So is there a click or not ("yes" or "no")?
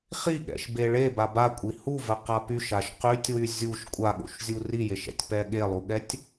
no